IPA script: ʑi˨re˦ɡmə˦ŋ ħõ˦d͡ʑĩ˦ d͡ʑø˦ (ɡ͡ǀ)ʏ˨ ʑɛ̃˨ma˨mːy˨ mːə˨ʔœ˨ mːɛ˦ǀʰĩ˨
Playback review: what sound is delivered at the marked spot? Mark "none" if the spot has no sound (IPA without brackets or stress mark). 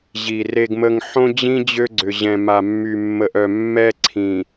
ɡ͡ǀ